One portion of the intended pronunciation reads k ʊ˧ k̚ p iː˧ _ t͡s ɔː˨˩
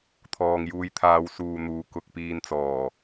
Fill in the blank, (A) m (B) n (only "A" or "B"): B